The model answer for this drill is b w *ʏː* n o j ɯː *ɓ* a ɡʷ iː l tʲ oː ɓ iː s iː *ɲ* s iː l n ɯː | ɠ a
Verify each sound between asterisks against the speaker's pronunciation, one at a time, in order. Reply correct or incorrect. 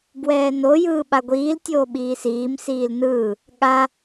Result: incorrect: ɛː, correct, incorrect: m

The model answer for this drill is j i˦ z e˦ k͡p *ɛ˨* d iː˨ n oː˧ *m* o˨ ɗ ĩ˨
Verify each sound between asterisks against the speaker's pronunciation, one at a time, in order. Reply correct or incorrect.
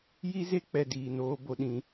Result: correct, incorrect: b

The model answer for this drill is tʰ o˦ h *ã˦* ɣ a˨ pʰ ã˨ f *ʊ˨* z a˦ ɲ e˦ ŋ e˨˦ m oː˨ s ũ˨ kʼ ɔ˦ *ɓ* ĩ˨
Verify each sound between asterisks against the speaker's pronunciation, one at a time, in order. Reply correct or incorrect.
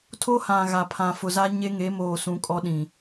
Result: incorrect: ã˨, correct, incorrect: ɗ

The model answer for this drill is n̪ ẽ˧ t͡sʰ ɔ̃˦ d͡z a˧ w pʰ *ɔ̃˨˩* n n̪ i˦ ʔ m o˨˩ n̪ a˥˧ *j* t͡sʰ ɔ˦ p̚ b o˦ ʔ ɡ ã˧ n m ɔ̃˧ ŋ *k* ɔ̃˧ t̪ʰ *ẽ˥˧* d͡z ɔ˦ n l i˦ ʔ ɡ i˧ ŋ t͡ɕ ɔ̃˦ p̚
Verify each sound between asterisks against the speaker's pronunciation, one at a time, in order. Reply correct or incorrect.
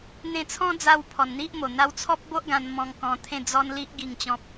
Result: incorrect: ɔ˨˩, incorrect: w, correct, correct

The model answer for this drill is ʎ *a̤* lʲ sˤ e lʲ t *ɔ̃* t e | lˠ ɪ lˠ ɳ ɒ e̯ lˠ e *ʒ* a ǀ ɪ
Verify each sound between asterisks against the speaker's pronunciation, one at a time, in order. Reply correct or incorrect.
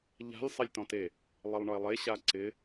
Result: correct, correct, incorrect: ɕ

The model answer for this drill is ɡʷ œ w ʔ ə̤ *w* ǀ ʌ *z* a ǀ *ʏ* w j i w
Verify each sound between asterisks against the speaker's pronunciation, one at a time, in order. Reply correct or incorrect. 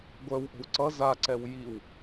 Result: correct, correct, incorrect: ɛ

